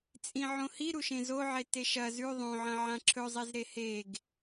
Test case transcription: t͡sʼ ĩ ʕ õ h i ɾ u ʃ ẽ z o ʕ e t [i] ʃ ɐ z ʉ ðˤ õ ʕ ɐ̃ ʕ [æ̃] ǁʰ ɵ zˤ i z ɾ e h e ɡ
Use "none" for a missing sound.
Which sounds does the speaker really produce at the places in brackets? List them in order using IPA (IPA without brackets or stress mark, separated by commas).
e, ã